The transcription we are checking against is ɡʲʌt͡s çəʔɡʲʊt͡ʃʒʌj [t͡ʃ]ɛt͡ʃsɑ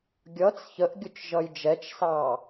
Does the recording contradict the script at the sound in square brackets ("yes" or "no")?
yes